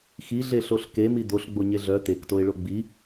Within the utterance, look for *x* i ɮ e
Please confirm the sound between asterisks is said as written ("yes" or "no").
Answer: yes